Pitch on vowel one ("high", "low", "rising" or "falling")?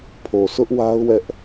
low